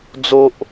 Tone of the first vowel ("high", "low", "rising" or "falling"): high